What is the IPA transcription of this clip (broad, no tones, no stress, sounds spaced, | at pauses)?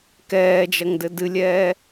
k ɛː d͡ʒ ɐ ŋ d ɘ d ɨ lʲ ɛː